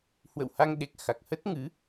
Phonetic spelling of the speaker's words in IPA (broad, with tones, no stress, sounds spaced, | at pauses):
h w ə̰˧˨ w h a˧ ŋ ɗ e˨˩ k̚ x a˨˩ k̚ h ə˦˥ t̚ ŋ ɨ˨˦